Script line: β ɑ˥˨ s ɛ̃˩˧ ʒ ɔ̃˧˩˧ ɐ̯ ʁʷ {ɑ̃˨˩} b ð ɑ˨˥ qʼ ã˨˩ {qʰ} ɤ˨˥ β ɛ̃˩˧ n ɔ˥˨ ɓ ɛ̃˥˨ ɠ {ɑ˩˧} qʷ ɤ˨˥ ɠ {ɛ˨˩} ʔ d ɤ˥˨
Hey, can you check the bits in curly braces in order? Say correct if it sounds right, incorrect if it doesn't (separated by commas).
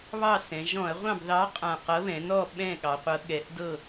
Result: incorrect, incorrect, correct, incorrect